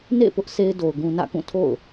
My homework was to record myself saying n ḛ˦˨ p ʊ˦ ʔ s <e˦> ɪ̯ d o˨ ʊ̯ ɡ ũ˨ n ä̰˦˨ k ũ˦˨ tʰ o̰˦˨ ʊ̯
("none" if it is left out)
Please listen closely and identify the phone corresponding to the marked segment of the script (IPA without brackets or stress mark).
e˦